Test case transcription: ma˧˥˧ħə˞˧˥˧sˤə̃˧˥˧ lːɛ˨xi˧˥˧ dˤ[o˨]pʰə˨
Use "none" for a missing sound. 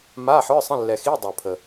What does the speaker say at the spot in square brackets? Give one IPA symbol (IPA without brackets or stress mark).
o˨